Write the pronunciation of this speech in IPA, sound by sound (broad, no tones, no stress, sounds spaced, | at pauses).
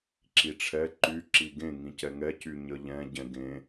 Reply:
ǁ i ʈ͡ʂʰ ɛ ǃ y ǁ i ɡ ẽ ŋ ĩ c ɛ ŋ ɛ c y ɲ ə ʎ ɛ̃ ɟ ɛ̃ ɡ ẽ